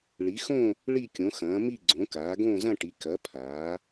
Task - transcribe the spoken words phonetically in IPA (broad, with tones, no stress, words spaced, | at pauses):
ɭi˨˥xõ˥˧ | ɭi˥˧kʲõ˨˥xɐ̃ː˨˥ mi˥˧ɡ͡ǀõ˨˥kaː˨˥ ɡõː˥˧zɐ̃˥˧ʈi˨˥ kɐ˨˥ pʰaː˨˥